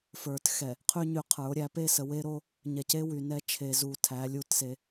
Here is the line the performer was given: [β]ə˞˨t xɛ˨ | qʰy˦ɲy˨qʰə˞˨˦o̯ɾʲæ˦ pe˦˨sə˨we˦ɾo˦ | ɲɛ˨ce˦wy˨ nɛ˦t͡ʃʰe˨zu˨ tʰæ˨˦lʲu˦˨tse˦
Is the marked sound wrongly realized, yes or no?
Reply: yes